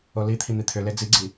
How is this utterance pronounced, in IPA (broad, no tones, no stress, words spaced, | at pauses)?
olit̪ʰi n̪it̪ʰʏle d͡ziɡ͡ǀi